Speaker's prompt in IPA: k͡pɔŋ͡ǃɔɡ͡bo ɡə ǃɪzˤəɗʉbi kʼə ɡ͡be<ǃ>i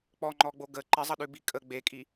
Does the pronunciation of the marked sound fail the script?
yes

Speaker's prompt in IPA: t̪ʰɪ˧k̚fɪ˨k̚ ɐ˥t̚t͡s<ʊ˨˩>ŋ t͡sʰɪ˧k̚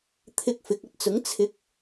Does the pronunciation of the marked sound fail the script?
yes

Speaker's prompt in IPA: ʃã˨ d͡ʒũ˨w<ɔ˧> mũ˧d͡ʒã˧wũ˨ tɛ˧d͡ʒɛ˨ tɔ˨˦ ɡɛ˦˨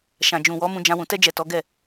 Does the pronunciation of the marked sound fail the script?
yes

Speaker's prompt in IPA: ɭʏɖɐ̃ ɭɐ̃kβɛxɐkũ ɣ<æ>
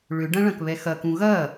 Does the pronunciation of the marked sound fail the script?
yes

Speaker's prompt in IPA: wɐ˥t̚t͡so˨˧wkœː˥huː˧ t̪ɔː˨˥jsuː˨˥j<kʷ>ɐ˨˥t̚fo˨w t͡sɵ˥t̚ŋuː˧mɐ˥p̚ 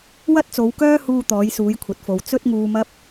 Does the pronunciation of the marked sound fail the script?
yes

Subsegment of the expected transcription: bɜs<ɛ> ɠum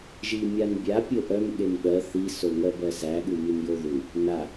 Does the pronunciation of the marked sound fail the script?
yes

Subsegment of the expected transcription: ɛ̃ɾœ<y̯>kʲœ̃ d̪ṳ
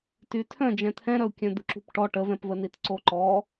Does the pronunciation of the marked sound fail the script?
yes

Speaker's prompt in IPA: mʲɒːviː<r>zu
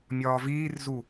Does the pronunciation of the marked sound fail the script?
no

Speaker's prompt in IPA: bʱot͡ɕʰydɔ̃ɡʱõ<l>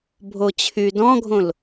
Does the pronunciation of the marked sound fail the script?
no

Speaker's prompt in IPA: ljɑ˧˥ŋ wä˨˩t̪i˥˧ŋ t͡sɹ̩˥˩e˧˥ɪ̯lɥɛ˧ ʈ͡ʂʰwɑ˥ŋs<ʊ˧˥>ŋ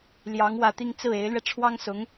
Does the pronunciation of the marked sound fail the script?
no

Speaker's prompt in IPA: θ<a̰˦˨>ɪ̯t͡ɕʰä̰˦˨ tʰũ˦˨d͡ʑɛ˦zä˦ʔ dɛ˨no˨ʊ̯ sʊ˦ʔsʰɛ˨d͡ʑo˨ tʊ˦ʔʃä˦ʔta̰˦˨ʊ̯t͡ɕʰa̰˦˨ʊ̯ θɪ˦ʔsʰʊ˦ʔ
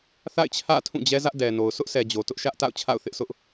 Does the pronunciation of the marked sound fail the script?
no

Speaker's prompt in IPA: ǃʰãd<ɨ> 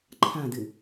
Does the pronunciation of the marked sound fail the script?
no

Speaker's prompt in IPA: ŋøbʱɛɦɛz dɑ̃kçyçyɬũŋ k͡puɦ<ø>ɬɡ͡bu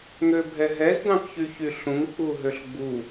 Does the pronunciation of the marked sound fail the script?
no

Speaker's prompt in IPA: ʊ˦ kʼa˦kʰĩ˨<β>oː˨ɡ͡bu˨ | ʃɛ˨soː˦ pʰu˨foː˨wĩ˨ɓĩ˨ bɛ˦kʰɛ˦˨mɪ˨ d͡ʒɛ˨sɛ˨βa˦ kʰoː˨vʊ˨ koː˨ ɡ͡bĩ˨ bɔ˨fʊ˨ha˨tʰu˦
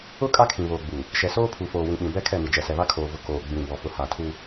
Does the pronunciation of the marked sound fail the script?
no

